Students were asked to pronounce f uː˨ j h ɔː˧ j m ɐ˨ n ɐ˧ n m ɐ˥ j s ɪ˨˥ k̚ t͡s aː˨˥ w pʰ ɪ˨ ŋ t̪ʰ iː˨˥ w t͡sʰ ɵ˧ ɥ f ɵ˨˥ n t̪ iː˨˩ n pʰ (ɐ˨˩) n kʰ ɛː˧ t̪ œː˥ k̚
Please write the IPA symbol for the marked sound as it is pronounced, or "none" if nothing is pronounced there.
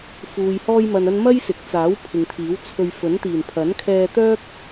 ɐ˨˥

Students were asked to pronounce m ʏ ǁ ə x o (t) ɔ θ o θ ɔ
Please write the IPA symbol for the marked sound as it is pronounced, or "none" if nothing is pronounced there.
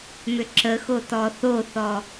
t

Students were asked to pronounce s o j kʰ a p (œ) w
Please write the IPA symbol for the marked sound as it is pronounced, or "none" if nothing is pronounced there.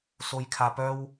œ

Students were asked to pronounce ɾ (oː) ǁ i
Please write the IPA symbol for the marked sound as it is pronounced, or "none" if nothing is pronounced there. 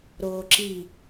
oː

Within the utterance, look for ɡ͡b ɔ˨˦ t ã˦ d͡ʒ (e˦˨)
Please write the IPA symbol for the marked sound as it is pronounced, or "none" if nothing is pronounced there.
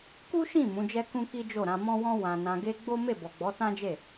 e˦˨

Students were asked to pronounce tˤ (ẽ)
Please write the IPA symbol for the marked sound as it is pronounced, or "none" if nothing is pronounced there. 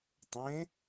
ẽ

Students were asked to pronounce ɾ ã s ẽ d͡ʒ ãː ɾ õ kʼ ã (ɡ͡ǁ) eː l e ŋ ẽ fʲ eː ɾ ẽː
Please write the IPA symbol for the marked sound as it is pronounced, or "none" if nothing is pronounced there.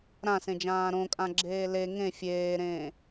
ɡ͡ǁ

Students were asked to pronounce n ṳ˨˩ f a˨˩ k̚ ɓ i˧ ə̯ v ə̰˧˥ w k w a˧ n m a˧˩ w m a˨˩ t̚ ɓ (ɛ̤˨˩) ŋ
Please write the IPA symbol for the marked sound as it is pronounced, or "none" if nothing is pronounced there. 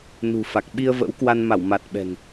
ɛ̤˨˩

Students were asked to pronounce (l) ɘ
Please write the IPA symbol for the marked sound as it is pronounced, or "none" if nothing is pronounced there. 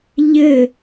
ʎ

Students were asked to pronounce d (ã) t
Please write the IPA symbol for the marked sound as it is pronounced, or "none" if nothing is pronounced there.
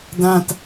ã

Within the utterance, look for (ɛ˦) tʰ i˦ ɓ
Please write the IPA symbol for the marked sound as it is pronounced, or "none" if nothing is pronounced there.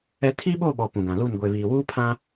ɛ˦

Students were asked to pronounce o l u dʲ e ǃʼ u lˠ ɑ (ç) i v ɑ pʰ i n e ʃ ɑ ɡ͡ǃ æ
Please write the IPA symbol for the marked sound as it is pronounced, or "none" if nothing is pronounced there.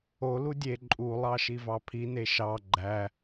ʃ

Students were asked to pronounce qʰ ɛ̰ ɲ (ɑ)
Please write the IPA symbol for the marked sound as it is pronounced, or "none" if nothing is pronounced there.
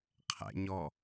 ɔ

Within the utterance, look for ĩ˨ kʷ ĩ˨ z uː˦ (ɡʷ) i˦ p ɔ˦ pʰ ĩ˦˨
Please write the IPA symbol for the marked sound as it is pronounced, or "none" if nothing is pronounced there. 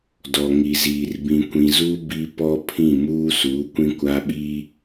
b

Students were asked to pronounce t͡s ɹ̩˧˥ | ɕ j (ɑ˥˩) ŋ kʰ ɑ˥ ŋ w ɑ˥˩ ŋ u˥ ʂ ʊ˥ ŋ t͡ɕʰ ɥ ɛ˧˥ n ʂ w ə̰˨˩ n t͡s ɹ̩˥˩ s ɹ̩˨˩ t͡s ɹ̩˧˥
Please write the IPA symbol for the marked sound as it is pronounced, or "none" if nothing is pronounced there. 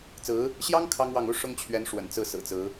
ɑ˥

